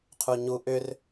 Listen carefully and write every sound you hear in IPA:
qʰ u ɲ u ʔ ʏ r

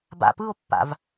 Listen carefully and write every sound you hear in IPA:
b a̰ p ɯ o̯ pː a̰ v

